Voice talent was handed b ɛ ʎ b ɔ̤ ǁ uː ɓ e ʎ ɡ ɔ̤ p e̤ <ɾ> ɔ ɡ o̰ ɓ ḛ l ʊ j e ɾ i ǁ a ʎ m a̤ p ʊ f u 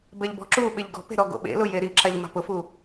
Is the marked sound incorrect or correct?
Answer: correct